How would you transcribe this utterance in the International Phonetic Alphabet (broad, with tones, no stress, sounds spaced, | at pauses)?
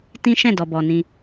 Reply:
t ĩ˦ ʃ ɛ̃˦˨ d ɔ˨ b ɔ˨ n ĩ˧